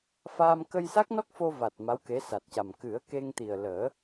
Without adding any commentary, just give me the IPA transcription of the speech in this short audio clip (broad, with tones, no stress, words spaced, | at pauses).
faː˧m kə˧jsa˦˥k̚nɔ˦˥k̚ fo˧va˨˩t̚ ma˧˥wke˧˥sa˨˩t̚ca˨˩m kɨ˨˩˦ə̯ ke˧ŋt̪i˨˩ə̯ləː˨˩˦